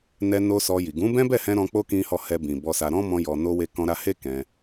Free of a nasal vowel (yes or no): no